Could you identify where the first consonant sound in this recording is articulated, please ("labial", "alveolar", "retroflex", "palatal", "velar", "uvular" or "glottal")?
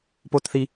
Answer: labial